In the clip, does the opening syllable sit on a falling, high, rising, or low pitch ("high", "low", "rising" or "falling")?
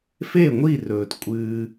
falling